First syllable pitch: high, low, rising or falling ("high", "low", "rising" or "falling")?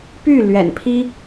falling